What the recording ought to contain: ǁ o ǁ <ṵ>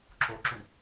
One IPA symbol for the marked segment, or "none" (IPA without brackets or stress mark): u